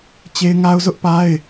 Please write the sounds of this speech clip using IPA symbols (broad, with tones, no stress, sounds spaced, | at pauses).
t͡ɕ e˦ ɪ̯ ŋ a˦ ʊ̯ z ʊ˦ ʔ p a˦ ɪ̯